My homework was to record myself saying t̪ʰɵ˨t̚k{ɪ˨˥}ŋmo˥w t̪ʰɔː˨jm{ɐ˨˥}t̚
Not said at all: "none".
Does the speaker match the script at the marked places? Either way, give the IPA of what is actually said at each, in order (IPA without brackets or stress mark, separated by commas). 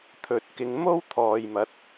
ɪ˨˧, ɐ˨˥